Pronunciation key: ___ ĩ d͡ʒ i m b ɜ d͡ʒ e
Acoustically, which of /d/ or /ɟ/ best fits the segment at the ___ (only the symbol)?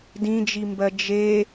d